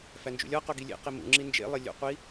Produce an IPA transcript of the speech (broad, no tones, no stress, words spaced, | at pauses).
fænd͡ʒṵlʲɒqo ɡilʲḛqi mṵŋ͡ǁi nd͡ʒḛlˠe lʲo̰qʷi